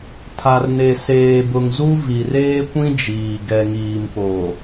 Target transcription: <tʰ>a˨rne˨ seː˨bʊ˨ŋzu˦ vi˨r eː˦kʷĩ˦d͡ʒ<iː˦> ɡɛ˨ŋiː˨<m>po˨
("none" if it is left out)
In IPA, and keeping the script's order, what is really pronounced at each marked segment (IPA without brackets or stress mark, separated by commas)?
tʰ, iː˨, m